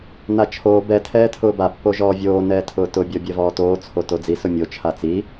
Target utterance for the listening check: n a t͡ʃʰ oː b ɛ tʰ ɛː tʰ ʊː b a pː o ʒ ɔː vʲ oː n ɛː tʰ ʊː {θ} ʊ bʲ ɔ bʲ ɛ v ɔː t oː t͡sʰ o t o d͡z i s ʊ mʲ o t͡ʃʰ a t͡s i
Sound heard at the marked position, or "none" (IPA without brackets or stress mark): t